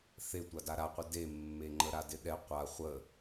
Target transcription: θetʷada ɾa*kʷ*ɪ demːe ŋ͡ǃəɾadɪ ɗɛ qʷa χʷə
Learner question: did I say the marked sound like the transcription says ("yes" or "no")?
no